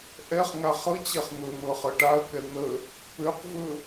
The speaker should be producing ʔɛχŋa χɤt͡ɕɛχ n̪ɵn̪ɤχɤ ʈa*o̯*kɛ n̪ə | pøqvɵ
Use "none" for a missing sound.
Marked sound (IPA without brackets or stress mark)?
ɐ̯